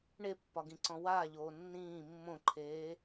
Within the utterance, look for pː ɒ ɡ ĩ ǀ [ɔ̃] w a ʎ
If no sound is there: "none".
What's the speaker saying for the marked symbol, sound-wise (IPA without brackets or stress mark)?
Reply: ɔ̃